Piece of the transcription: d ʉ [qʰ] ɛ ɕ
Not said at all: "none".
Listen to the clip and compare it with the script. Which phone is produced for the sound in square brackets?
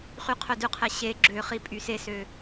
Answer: qʰ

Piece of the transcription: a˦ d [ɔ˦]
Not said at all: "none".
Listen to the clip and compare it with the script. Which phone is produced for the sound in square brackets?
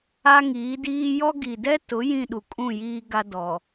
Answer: ɔ˨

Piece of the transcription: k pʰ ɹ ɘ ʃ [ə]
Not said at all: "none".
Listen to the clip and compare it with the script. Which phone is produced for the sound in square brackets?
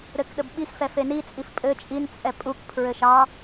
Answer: ɑ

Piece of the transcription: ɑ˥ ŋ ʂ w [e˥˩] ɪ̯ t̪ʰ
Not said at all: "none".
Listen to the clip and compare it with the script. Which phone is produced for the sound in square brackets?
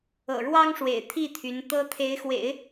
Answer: ḛ˨˩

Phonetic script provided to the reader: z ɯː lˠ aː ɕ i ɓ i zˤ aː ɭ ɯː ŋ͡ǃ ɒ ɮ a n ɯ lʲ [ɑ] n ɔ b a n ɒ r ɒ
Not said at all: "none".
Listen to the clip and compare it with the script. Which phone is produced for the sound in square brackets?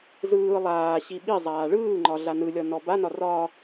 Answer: ɒ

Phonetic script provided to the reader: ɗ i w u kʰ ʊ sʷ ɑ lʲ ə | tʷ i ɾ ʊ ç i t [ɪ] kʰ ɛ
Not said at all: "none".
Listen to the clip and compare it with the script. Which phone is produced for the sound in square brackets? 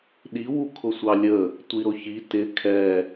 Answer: ɪ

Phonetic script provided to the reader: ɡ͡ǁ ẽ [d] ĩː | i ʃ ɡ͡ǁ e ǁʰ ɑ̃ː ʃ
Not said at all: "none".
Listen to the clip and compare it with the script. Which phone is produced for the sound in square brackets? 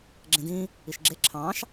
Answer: d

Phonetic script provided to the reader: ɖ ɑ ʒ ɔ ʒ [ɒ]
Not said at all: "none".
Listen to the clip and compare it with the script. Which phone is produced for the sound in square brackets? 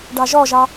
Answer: ɑ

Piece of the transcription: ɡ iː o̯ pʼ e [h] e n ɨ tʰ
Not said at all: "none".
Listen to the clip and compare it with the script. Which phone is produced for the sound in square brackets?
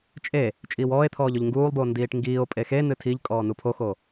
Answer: x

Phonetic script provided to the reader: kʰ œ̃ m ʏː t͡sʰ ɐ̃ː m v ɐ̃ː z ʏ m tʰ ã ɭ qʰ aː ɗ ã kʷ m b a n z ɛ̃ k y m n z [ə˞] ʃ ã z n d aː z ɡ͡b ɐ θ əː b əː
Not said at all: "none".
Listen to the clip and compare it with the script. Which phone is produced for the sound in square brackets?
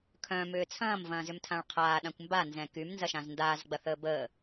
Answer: ɐ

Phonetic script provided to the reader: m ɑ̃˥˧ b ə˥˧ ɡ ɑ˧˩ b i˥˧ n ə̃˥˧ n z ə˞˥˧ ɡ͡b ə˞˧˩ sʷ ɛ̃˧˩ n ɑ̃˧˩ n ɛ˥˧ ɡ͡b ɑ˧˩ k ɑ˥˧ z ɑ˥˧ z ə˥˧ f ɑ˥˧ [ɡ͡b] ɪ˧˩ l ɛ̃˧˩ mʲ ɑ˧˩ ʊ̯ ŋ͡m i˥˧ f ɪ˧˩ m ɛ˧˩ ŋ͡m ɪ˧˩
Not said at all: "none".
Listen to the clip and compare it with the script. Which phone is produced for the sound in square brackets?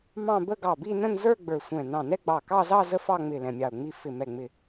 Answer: ŋ͡m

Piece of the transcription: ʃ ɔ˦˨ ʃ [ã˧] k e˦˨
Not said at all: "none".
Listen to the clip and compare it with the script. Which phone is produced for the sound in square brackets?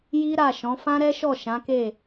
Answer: ã˨˦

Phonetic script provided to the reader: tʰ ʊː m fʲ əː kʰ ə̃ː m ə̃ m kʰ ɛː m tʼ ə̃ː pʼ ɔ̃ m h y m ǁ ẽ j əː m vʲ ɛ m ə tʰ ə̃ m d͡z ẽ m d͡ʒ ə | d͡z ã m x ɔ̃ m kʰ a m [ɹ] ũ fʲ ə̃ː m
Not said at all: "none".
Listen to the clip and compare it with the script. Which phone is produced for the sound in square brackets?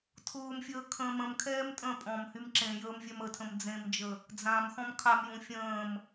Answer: j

